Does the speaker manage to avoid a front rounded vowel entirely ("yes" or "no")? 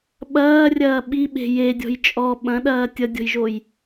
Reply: yes